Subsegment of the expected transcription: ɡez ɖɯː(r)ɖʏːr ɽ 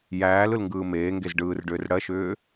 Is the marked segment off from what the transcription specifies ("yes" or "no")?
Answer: no